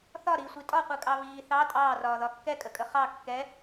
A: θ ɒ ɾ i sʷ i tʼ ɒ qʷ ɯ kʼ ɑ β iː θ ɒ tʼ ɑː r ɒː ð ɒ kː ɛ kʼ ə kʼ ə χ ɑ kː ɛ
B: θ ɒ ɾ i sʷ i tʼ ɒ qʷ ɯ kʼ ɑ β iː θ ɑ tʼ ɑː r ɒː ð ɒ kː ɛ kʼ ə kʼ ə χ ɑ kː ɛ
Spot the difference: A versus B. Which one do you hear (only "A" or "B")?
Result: B